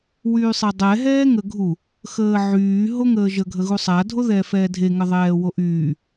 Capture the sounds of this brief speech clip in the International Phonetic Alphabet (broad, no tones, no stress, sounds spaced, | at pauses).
w yː sˤ e dˤ ɛ ɦ ɛː ŋ ə ɡʱ u | x əː ʕ yː ɦ o ŋ əː ʒ ə ɡʱ ə ɣ u sˤ a dʱ o ð ɛː f ɛː dʱ e ŋ ə ðˤ ɛː w o ʔ yː